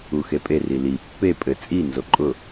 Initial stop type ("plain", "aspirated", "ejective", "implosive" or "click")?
ejective